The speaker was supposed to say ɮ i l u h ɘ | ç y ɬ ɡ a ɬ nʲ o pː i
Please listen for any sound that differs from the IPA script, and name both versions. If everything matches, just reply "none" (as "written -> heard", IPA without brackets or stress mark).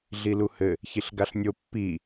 y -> i